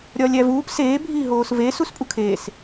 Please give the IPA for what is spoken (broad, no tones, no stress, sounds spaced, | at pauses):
ɾʲ ɒ lʲ æ v uː p s eː bʱ iː ɦ oː s v e s u s pʼ u kʰ eː s